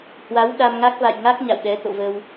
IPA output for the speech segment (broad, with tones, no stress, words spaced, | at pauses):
hwa˨˦w ɗa˧mŋa˦˥k̚ va̰˧˨jŋa˦˥k̚ ɲa̰˧˨wɗɛ˨˦ t̪o̰˧˨və˧w